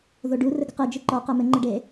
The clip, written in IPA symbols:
ð o ɖ u r ɘ ɡ ɨ q e d͡ʒ ɨ ǃ ɔ q ɛ m ɘ ŋ͡ǃ ɘ ɖ e

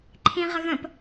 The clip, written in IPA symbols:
ǃʰ ĩ ʁ ə ɣ ə̃ p

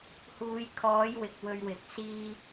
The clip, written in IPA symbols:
h uː˨˧ j kʰ ɔː˨˥ j w ɪ˨ k̚ w ɵ˧ ɥ w ɪ˨ k̚ s iː˥

